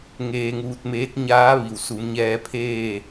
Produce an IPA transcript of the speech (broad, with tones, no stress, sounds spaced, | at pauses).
ŋ eː˧ ŋ uː˧ t̚ m eː˧˥ t̚ ɲ aː˧˥ ʋ i˩ w s u˩˧ m ɲ ɛː˧ pʰ eː˥˨